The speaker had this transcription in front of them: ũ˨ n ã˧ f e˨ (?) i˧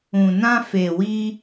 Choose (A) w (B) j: A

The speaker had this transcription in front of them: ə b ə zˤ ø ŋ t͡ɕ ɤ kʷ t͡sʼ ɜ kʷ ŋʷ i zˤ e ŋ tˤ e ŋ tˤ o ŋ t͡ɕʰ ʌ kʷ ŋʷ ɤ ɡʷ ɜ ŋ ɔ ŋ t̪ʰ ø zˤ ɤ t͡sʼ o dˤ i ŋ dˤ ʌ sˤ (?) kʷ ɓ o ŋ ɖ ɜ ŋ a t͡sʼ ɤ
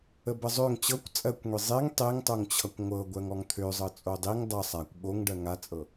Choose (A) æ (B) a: B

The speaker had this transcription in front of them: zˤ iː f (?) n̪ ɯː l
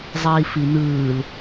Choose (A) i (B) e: A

